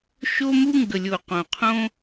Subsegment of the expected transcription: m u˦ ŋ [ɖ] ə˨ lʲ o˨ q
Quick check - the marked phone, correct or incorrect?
incorrect